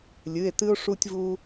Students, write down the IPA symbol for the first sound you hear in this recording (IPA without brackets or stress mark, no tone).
lʲ